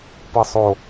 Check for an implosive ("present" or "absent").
absent